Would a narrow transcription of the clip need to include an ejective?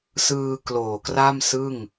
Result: no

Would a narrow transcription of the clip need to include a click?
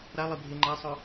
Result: yes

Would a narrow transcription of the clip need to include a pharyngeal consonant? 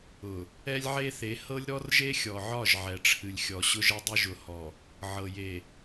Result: yes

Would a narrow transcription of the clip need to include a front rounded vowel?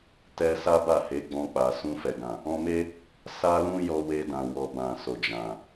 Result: no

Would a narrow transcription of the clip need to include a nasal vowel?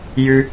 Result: no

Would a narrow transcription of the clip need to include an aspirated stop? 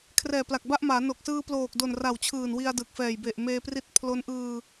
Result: yes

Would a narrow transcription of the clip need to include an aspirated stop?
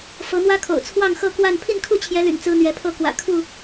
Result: yes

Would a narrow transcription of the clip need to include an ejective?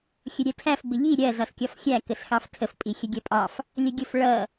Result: yes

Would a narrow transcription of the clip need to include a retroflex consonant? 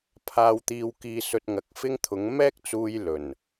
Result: no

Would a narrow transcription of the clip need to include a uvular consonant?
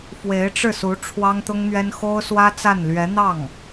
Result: no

